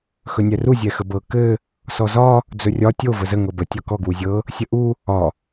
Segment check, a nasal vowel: absent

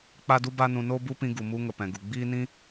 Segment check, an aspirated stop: absent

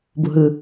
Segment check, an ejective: absent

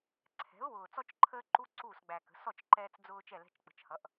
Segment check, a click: present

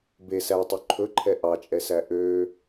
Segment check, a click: present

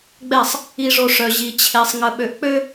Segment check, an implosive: present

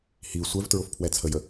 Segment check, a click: absent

